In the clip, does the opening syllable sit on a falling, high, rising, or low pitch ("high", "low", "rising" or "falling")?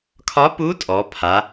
rising